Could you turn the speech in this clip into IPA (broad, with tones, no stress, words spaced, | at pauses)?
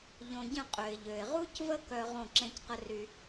ʎõ˨ɟə̃˦˨ qʼø˨ɪ̯ʎø˨ɪ̯ ʁu˦cvə˦ kœ˦ ʁõ˦˨ǁẽ˦cqə˦ry˦